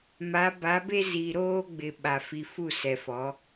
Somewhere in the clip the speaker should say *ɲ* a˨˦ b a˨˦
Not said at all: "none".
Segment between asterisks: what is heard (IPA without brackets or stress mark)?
m